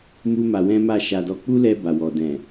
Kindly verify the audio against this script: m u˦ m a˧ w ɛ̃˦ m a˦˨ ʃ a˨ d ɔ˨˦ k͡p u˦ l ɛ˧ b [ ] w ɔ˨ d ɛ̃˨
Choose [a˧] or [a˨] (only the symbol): a˨